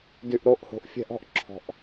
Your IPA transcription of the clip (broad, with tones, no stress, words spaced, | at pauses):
dy˨ʔɾo˨ʔho̤˨ʔ fʲɛ̤˧ʔ ɔ̤˧ʔǁʰɔ̤˨ʔ